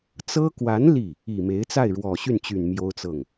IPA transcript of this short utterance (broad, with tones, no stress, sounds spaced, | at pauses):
t͡s ɤ˥ k w a˧˥ n l i˥˩ | i˨˩ m e˧˥ ɪ̯ t͡s a˥˩ ɪ̯ ɻ w ɔ˨˩ ɕ y˥˩ n t͡ɕ y˨˩ n m j o˥ ʊ̯ t͡s ɤ˥˩ ŋ